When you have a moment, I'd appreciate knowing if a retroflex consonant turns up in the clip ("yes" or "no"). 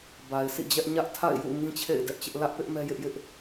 no